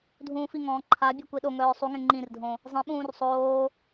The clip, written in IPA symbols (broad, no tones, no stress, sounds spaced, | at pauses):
dʱ ũː f i ŋ ɔ̃ː ǃʰ a bʲ œ kʷ e ɗ o ŋ œː sˤ u ŋ ẽ ŋ͡ǃ ĩ r dʱ õ | zˤ ẽ ɓ ũː r sˤ oː